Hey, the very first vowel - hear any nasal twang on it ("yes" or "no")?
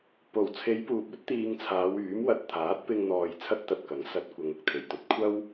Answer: no